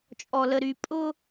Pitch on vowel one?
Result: low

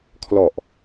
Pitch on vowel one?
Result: low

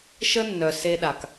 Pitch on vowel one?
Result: high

